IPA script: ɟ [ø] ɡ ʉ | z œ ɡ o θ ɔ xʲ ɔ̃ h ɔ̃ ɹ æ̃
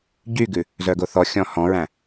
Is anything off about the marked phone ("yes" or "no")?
yes